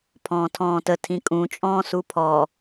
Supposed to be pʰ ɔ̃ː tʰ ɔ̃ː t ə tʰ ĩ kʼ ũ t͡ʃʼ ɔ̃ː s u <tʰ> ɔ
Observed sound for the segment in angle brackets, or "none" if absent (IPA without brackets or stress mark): pʰ